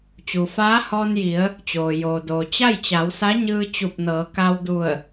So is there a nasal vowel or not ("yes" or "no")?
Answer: no